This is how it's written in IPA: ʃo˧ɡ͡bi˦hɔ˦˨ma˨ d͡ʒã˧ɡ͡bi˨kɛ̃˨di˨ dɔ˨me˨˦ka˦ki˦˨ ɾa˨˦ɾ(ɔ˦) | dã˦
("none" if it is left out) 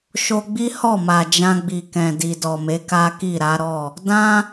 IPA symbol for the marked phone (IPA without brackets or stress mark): ɔ˦˨